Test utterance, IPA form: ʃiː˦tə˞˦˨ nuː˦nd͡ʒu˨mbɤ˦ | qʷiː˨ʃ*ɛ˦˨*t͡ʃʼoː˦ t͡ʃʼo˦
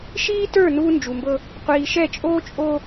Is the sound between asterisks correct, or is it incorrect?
correct